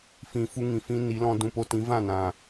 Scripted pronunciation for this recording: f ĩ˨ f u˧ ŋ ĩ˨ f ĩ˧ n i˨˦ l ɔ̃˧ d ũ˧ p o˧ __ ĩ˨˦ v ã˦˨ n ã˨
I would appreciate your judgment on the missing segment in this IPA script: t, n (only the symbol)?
t